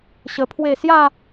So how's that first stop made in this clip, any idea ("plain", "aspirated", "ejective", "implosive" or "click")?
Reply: aspirated